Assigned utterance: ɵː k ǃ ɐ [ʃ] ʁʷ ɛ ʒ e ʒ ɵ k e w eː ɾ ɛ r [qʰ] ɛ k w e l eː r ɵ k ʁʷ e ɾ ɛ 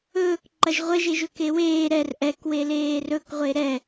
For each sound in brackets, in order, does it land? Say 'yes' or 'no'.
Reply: no, no

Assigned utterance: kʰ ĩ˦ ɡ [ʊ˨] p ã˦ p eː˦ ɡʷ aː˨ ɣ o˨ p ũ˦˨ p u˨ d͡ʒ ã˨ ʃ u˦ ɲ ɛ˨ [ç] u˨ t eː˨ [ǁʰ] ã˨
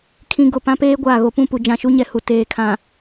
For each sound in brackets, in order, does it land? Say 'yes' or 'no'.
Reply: yes, no, no

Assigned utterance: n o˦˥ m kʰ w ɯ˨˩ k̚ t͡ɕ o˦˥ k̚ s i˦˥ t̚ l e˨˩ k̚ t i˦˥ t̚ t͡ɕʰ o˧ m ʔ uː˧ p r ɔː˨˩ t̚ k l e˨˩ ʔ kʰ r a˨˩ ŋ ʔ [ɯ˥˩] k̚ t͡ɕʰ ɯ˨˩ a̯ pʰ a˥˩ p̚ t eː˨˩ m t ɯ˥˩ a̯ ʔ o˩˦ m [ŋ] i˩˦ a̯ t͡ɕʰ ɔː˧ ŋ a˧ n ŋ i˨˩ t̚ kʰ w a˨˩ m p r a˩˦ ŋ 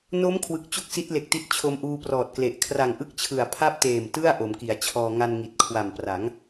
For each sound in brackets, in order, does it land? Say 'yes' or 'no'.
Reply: no, no

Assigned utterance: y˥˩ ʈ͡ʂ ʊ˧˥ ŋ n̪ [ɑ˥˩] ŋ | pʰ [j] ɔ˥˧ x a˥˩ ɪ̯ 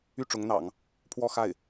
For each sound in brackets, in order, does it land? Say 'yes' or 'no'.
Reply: no, no

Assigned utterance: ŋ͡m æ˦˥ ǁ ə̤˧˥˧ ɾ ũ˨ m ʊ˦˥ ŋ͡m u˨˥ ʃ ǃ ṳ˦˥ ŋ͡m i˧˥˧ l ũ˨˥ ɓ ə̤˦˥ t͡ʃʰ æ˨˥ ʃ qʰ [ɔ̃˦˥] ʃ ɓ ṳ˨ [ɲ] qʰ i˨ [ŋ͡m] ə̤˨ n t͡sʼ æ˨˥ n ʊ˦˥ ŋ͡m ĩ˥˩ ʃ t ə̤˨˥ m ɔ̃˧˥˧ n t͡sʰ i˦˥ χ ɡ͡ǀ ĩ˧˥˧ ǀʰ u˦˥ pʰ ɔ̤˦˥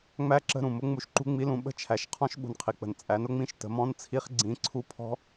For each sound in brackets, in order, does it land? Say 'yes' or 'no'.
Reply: yes, no, no

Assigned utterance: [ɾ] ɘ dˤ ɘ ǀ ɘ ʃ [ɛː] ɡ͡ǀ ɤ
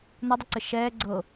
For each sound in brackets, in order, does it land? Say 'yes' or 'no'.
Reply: no, yes

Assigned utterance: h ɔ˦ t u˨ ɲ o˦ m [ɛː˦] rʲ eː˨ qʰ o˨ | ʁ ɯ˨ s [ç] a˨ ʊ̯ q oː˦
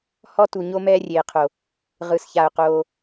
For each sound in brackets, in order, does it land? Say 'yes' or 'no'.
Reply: yes, yes

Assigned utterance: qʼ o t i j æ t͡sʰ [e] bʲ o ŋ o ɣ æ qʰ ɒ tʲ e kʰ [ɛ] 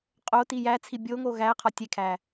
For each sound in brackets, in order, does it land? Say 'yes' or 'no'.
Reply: no, no

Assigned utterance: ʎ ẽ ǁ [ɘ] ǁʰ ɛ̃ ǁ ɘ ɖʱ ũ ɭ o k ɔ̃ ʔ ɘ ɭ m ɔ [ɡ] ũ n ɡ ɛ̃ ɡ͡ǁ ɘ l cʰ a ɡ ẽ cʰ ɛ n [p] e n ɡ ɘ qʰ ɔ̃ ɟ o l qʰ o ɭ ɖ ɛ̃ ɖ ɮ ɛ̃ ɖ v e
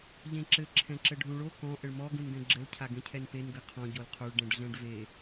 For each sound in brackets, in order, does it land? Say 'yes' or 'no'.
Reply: yes, yes, yes

